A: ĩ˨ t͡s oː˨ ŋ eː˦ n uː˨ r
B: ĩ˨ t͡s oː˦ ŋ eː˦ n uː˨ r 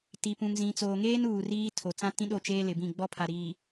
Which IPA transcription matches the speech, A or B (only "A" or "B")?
A